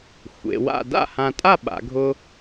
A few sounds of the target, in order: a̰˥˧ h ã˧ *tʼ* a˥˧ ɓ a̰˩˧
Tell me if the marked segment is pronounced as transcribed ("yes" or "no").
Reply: yes